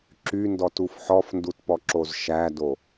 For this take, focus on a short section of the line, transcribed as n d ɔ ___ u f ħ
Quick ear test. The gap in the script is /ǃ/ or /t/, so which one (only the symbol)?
t